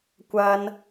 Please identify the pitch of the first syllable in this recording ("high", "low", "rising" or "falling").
high